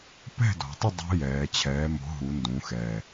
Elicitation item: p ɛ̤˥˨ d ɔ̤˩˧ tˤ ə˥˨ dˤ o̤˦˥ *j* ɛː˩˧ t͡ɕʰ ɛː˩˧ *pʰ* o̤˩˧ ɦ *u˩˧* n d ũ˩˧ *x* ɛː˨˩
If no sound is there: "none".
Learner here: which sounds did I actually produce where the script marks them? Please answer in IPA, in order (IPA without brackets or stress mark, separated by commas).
j, m, u˩˧, x